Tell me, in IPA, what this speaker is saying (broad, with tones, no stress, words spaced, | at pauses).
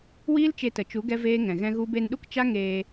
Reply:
wiː˦lt͡ʃe˧tə˨ t͡ʃu˨˦ ɡɛ˦veː˦ ŋɛ̃˨ɣɛ̃˦ɣu˦ be˧nɗu˦kt͡ʃa˦ ŋeː˧